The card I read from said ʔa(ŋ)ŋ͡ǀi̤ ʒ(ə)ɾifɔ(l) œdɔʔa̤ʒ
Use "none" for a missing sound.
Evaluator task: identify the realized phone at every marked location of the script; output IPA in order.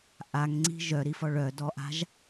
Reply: ŋ, œ, ɭ

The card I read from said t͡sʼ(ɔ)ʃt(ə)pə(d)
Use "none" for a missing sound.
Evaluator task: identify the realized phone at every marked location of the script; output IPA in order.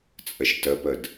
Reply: ə, ə, d

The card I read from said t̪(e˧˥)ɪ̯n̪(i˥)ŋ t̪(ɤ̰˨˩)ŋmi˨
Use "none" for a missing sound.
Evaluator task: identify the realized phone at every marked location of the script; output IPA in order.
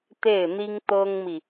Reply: e˥˩, i˥, ɤ˥

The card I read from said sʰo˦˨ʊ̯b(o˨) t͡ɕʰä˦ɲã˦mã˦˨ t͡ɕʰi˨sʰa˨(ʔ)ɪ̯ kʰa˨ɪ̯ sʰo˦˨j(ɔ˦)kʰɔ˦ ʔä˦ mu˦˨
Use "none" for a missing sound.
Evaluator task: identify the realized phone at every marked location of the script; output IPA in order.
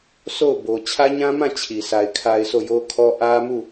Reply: o˨, none, o˦

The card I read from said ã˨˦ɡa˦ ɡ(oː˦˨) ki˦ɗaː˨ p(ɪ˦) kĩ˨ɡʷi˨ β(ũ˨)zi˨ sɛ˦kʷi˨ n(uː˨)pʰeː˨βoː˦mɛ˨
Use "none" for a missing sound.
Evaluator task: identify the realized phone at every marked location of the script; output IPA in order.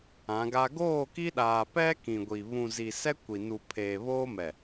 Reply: oː˦˨, ɛ˦, ũ˨, u˨

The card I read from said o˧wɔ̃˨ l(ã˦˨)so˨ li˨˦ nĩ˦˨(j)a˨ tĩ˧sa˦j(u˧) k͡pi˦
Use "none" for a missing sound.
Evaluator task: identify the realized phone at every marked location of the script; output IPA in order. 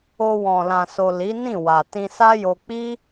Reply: ã˨, w, o˧

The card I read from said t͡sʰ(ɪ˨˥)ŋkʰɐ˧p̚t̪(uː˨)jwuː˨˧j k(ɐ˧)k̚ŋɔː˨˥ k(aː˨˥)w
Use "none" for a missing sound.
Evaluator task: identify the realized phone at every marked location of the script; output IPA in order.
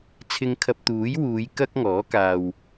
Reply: ɪ˧, uː˨˥, ɐ˥, aː˨

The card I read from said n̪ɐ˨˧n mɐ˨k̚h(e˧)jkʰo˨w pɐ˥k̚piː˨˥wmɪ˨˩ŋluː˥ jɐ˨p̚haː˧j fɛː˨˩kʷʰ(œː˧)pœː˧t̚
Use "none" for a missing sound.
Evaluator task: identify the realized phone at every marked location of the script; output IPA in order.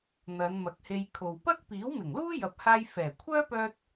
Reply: e˧, œː˥

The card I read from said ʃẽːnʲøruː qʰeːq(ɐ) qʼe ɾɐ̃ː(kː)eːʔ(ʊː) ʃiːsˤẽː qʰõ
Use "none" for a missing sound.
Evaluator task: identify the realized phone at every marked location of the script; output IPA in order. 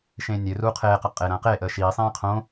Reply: ɐ, q, əː

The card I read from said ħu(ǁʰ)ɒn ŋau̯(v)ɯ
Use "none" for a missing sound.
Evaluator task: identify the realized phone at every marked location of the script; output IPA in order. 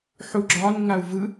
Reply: ɡ͡ǁ, v

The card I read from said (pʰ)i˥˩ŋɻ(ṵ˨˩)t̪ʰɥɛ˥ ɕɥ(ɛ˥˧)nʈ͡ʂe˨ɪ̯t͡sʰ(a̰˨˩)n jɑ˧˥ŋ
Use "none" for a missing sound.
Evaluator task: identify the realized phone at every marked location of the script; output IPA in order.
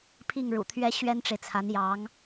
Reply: pʰ, ṵ˨˩, ɛ˥, a˧˥

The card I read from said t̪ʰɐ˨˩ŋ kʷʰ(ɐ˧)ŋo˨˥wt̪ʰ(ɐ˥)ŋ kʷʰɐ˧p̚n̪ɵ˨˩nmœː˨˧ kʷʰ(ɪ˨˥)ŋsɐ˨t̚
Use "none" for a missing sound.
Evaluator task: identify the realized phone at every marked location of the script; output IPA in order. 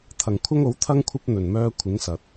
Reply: ɐ˥, ɐ˥, ɪ˨˥

